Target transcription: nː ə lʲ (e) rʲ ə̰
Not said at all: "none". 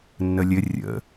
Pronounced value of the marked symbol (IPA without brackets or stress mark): ɘ